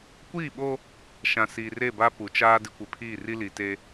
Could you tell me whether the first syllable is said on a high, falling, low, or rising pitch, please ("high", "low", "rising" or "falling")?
falling